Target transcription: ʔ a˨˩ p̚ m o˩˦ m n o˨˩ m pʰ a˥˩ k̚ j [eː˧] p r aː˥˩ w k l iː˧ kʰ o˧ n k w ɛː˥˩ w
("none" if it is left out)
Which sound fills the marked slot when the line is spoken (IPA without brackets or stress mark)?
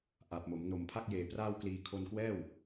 eː˩˦